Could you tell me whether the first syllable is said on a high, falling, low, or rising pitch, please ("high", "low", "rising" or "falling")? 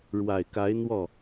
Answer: low